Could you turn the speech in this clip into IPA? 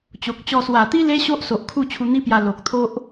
t͡ɕo˨k̚t͡ɕɔ˧ swa˨˩t̪i˦ le˦ ɕo˦ʔso˨ʔ kʰu˥˧t͡ɕʰu˧n̪i˦pja˧ lo˨k̚t̪ʰo˦ʔ

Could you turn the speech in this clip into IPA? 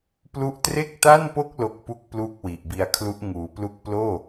plu˦˥ʔtre˥˩k̚ta˥˩npo˥˩k̚ lo˥˩k̚pu˥˩k̚ pluː˥˩k̚wi˨˩ʔbi˧a̯kʰlu˦˥ʔ ŋuː˩˦plu˦˥k̚ ploː˥˩

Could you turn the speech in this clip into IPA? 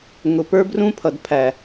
ŋʊ˨pə˞˦brũ˦pʰʌ˨d pʰæ˨

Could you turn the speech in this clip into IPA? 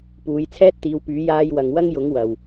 puː˨˧jt͡sʰɛː˥t̚t̪iː˨˧wpyː˨˥ jaː˧j wɐ˨ŋ wɐ˥ŋjʊ˨˥ŋ wɐ˨w

